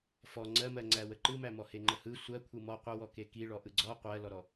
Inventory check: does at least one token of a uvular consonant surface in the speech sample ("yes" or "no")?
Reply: yes